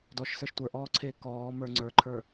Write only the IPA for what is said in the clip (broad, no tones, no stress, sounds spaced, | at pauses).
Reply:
d ɔ ʃ s ə˞ ʃ tʷ ə˞ ʔ ɔː ǀʰ eː k ɔː m ə˞ ŋ͡ǀ ə˞ ǃʰ ə˞